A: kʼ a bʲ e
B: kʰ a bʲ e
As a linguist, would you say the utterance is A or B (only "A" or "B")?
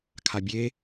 B